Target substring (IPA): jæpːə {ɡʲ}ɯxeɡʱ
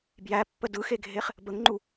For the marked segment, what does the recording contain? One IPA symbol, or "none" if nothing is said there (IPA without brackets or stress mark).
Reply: d